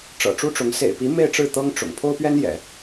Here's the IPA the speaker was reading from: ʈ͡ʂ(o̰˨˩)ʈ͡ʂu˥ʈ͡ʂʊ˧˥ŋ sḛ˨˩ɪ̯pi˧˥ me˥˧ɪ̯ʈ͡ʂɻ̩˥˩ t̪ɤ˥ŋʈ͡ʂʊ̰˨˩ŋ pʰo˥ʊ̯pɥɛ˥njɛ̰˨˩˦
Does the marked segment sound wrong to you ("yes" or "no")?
yes